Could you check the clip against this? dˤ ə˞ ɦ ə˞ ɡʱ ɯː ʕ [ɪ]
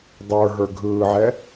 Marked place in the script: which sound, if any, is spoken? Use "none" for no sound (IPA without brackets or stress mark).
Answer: ɛ